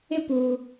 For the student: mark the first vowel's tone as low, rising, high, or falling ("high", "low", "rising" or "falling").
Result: high